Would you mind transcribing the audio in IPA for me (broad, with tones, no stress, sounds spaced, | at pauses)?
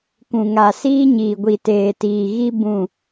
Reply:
k ũ˨ ŋ a˨ s iː˦ ɲ iː˨ ɡʷ i˨ t eː˨ t iː˨ ɣ i˦ b ũ˦˨